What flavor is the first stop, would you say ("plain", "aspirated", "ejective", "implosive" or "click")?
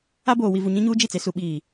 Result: plain